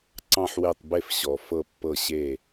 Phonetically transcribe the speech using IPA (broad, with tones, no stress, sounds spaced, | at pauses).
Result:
ǀ ɑ̃˦˨ ħ w e˦˨ tˤ b e˦˨ f ɕ ɔ˨ f ɤ˦˨ pː ɤ˦˨ ɕ e˦˨